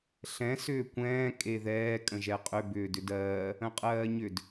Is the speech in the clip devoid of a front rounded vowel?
no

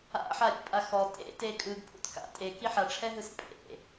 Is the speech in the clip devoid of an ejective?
no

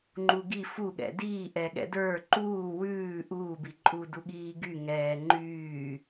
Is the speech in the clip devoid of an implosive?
no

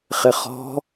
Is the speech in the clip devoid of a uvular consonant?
no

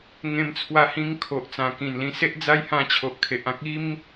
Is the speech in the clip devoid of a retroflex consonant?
yes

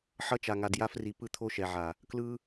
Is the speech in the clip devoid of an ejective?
yes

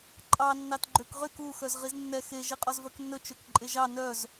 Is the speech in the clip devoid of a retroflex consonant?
yes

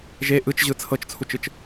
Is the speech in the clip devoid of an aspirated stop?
no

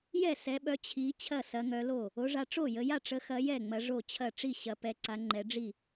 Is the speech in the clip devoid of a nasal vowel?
yes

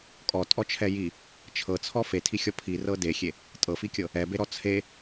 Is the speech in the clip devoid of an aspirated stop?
no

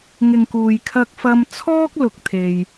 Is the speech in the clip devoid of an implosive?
yes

